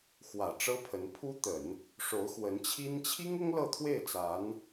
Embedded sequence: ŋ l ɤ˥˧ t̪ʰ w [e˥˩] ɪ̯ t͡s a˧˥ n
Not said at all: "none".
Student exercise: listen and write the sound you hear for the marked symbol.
e˥˩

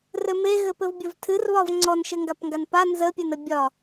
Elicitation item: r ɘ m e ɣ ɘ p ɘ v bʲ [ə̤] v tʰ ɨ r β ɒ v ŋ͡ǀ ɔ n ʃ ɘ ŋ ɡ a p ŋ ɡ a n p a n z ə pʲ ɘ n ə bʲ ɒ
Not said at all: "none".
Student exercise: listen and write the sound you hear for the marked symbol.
ə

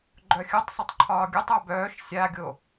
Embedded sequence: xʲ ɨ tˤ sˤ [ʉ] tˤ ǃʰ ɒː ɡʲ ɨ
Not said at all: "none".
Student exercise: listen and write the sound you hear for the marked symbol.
ɨ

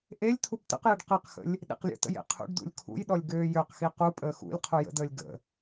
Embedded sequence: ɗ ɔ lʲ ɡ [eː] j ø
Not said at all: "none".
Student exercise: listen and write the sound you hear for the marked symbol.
øː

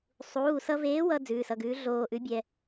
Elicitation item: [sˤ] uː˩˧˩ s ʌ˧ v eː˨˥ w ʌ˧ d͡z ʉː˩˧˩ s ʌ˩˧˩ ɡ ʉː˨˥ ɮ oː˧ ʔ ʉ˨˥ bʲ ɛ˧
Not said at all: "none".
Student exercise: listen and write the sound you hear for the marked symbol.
sˤ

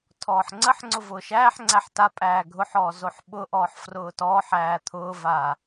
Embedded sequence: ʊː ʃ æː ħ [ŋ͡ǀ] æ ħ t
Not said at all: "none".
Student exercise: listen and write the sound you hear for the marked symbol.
ŋ͡ǀ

